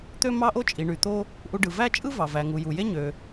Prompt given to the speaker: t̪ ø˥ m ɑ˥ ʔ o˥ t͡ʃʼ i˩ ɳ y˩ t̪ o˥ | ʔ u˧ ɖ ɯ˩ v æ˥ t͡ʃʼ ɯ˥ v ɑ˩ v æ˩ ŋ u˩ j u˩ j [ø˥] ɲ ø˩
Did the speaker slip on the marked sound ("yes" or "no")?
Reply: yes